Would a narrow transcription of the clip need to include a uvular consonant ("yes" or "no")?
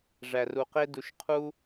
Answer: yes